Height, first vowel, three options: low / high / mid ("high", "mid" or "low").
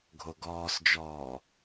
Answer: mid